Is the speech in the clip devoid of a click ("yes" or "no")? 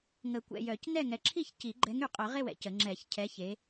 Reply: no